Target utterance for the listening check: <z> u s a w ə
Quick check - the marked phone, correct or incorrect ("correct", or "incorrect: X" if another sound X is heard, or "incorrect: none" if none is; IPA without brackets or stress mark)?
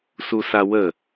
incorrect: s